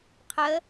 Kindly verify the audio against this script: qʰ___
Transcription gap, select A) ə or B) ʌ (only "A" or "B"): A